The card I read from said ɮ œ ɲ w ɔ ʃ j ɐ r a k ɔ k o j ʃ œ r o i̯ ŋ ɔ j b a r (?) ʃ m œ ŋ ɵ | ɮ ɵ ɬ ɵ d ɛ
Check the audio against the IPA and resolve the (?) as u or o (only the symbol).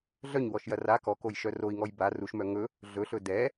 u